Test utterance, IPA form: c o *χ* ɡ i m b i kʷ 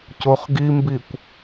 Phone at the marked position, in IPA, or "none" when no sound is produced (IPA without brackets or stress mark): χ